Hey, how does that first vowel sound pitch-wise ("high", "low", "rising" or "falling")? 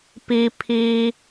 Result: high